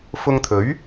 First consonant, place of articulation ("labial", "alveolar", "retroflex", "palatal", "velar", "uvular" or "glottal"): labial